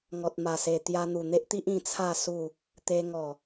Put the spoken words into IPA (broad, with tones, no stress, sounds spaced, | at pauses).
ŋ ɔ˨ t̚ m a˨˩ s e˨˩ t̪ j a˧ n̪ u˨˩ n̪ e˦ ʔ t̪ i˦ ʔ ĩ˥˧ t͡sʰ a˥˧ s u˥˧ | t̪ e˧ ŋ ɔ˨˩